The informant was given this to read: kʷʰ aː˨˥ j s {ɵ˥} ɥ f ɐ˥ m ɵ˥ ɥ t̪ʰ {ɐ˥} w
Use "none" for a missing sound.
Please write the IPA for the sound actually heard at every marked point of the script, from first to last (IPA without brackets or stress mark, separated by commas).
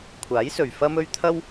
ɵ˨, ɐ˥